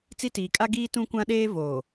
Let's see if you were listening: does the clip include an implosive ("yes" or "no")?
yes